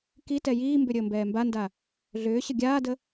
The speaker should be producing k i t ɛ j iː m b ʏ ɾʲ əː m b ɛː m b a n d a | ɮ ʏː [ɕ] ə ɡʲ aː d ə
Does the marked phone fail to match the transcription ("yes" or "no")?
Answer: no